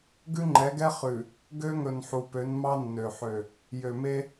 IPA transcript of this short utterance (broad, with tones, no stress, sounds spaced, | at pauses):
ɡ ʉ˦ ŋ͡ǃ ɛ˨˦ ɡ ɛ˦ χ ʉ˨ | ɡ ø˦ ŋ ɵ˨ n ħ u˨ p ø˨˦ n m ɑ˦ nː ø˨ ħ ø˨ | j ø˨ m e˦